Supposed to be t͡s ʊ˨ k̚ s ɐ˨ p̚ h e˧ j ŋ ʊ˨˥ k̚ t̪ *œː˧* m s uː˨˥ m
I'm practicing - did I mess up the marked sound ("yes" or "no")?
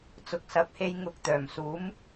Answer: yes